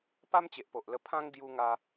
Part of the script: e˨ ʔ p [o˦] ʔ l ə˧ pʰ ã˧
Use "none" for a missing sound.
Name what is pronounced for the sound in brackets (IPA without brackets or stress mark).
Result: o˨